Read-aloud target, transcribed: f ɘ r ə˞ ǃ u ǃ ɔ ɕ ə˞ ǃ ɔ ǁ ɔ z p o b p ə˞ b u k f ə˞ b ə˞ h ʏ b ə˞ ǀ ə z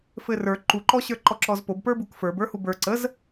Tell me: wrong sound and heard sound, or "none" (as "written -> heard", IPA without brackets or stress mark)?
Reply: ʏ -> u